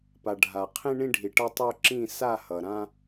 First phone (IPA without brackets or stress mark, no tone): p